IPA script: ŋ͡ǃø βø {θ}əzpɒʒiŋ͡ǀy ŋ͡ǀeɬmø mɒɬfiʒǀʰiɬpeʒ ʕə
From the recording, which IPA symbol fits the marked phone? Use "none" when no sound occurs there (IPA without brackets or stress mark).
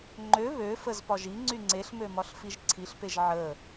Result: f